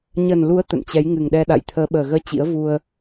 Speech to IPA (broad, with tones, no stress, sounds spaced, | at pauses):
ɲ ə˨˩ n l u˨˦ ə̯ t̪ ə̰˧˨ n t͡ɕ ɛ˨˦ j ŋ ɨ˨˩ ŋ ɗ ɛ˧ ɗ a̰˧˨ j t̪ʰ əː˨˦ ɓ əː˨˩ ɣ əː˧ t͡ɕ ḭ˧˥ ə̯ v u˧ ə̯